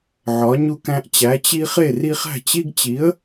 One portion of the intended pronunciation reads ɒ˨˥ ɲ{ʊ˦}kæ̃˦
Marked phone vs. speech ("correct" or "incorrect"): incorrect